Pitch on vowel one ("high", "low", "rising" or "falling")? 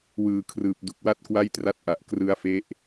low